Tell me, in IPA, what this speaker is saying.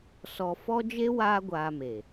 s ɔ˧ f ɔ˦ d͡ʒ e˦ w aː˦ ɡʷ aː˧ m e˨

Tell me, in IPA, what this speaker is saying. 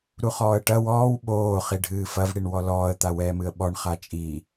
ɾ u χ ɔː ə̯ ʈ ɐ w ɔː w ɓ oː χ i ɖʱ ɨː f ɐ v ɽ i ɳ w ɔ l ɔː ə̯ t̪ a w ɛː m ɨ ə̯ ɓ ɔ ɳ χ a t͡ʃʼ i

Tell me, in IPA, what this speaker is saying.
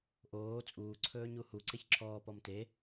ʔ oː t͡sʼ uː ǀʰ ɵː ɲ u h u ǀ e ç ǁʰ ɔː p ɔ m t e

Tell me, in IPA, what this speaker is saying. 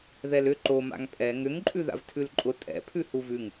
ð ɛ l ʏ ǃ o m a̰ ŋ pʼ ɛ ŋ ʏ ŋ ǃʼ ʉ ð a̰ v tʰ ʉ l ǃʼ ʊ tʼ ɛ̰ pʰ ʉ h u v ʉ ŋ

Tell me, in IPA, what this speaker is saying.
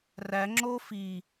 r æ ŋ͡ǁ o f i

